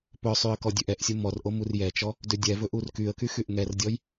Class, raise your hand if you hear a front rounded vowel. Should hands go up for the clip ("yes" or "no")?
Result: yes